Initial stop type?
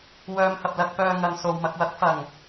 plain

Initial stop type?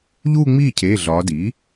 aspirated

